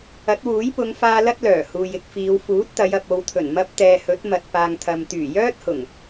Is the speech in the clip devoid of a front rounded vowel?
no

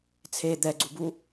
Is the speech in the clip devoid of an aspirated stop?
no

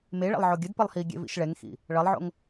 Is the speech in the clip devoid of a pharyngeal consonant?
no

